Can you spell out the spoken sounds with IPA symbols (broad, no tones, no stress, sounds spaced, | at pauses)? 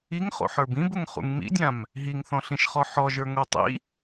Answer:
i ŋ χ o̰ ħ ə˞ b ĩ b ʊ ŋ χ ṵ ŋ m ḭ dʲ ã m | ɦ i ŋ θ ɔ̃ ɬ ĩ ʃ χ ɔ ħ ɔ ʒ ə˞ ŋ o tˤ ḭ